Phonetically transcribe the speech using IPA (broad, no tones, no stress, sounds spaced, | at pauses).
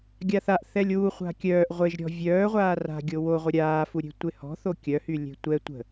ɡʲ a θ a ʔ θ ɛ lʲ w u χʷ a̤ kʲ œː ʔ ʁʷ e ʒ ɾʲ ɔ̤ vʲ œː ʁʷ aː r a̤ ɡʲ o w o ʁʷ ə ɾʲ aː f u ɾʲ e̤ tʷ e h ɔ̤ θ o kʲ œ h y lʲ e̤ tʷ ɛ tʷ ə̤